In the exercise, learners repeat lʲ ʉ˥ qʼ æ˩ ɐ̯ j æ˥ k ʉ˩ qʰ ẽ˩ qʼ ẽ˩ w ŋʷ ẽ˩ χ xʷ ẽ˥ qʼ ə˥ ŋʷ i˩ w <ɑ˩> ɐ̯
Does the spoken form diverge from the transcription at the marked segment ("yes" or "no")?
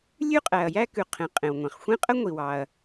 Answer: no